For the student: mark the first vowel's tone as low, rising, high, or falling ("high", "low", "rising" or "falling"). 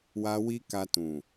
high